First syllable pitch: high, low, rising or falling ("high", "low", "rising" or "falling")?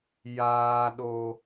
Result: low